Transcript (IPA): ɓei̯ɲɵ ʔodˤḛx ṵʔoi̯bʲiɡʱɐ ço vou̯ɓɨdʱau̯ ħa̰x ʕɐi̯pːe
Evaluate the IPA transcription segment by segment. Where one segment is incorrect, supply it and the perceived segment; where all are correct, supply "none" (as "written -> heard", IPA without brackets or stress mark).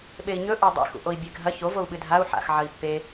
i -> e